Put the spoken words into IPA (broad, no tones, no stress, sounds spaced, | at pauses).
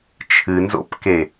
t͡ʃʰ ɨ n z o̰ p k e